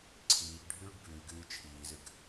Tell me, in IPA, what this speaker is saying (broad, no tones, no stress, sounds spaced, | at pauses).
ǀʰ iː ɡ ɖʱ ʉː ɖ b ʉː ɡ ɨː t͡ʃʰ iː z ɨ ɡ